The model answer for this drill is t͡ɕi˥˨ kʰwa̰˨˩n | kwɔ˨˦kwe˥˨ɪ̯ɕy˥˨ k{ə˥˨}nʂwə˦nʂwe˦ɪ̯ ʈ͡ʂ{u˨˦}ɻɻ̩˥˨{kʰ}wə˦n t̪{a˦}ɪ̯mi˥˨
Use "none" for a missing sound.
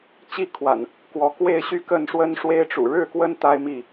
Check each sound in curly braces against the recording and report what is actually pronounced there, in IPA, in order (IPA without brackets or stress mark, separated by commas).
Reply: ə˥˨, ṵ˨˩, k, a˦